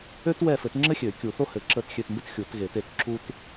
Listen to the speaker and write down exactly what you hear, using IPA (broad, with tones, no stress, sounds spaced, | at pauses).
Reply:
ø˥ t w ɛ˦˨ f ɘ˨˩˦ t ŋ͡ǁ ɘ˥ xʲ ø˨˩˦ kʲ u˨˩˦ θ o˥ h ɘ˨˩˦ ǁ ə˦˨ t xʲ ø˦˨ t m b ə˥ t xʲ u˨˩˦ t ɣ e˨˩˦ t e˦˨ t ǁ u˥ t